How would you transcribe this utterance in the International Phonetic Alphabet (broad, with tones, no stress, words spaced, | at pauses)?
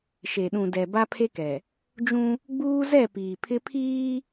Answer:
ʃe˨ɗũ˨dɛ˨ ba˦pʰe˦kɛ˨ | d͡ʒũ˦ | ɡ͡buː˦zɛ˦˨ piː˨pʰɪ˦pʰiː˦